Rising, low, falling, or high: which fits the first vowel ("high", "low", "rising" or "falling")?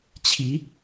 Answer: rising